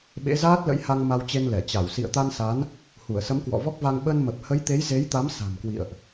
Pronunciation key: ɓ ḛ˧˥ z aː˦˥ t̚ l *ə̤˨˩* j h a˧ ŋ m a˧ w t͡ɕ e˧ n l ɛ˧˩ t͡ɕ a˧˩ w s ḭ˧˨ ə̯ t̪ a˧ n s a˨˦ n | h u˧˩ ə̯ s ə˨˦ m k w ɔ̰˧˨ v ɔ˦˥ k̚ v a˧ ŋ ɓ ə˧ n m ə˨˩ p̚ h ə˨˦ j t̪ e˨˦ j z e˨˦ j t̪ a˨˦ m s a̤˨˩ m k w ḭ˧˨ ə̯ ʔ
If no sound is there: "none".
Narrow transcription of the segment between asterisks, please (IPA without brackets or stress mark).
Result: ə̰˧˥